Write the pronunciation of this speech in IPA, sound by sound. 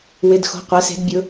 wɪ˩˧˩dxo̤˩˧˩ qʷɛ˩˧se̤˩˧dbʲʊ˩˧

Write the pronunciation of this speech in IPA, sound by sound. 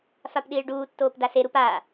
fapɗiːɭɖuː tːoːpdase ɾupa

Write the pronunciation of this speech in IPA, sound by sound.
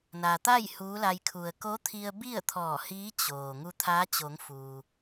na˩t̪a˥˨j huː˧˥la˧j kʰu˩ə̯ko˧˥ t̪ʰi˧ə̯bi˥˨ə̯ t̪ʰɔː˧˩hiː˧˥ t͡ɕoː˩ ŋu˧t̪ʰaː˧˥t͡ɕo˩˧ŋ fuː˩

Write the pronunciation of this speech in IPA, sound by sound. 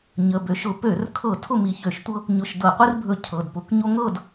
ɲə˩˧˩ bø˨˦ʃʊ˨˦ pø˧˩˧rkʰɤ˧˩˧ tʰʊ˥˨mi˧˩çø˧˩˧ʃtʷɤ˦ | ɲʊ˧˩ʃdɤ˧˩˧qʷi˦rbʱɵ˧˩ cʰɤ˩˧˩dpʊ˧˩˧kɲo˦ ŋɤ˥˨d

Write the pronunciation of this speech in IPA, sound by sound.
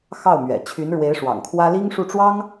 xɑ˥˩ʊ̯mɥɛ̰˨˩ t͡ɕʰy˧˥nɻwe˧˥ɪ̯ʂwɑ̰˨˩ŋkʰwä˥ li˥ŋʂu˥˩ʈ͡ʂwɑ˥ŋ

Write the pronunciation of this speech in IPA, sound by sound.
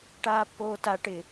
ʈaːpːoːta ʈɪ

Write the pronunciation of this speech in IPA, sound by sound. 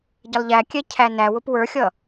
ɟəlˠʎæ kʲɛcʰænæ wʊpwə˞xʲʌ

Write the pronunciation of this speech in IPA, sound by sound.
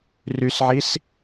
rysʕis

